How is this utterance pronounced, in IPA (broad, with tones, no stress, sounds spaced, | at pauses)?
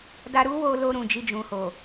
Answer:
d a˧ ɾ u˦ w o˧ l o˧ ɾ ũ˨ d͡ʒ i˧ d͡ʒ ũ˨ h o˨